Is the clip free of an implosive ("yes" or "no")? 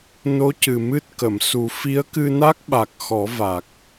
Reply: no